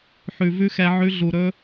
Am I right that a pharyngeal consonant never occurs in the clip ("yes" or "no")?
no